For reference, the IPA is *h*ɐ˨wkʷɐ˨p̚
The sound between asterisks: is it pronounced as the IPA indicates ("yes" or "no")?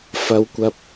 no